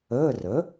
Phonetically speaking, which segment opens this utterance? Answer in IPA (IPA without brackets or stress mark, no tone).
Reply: əː